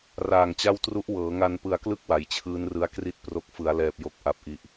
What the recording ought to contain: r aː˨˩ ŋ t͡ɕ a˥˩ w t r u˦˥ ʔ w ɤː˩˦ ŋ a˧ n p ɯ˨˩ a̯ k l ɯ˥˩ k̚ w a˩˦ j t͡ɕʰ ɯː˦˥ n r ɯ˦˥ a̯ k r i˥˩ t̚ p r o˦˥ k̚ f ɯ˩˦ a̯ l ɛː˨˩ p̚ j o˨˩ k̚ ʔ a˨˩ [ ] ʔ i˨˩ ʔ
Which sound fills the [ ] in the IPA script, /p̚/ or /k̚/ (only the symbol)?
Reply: p̚